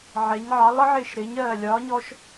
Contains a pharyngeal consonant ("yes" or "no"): yes